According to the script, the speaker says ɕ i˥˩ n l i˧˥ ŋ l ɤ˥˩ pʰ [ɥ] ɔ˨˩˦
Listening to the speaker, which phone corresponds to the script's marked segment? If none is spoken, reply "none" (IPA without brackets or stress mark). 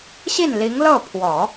w